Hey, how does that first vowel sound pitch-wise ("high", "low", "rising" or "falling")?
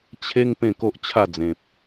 high